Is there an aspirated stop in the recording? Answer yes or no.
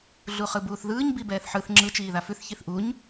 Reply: no